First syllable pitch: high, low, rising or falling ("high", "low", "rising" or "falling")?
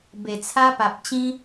low